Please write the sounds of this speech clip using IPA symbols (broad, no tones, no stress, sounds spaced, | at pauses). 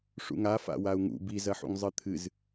ʂ ṵ ŋ a f a̰ w a u̯ ŋ ṵ b i z ɐ ħ ṵ ŋ zˤ ɨ t̪ʰ ɨ z